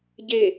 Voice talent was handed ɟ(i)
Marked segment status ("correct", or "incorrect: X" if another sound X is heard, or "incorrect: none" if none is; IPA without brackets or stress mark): incorrect: e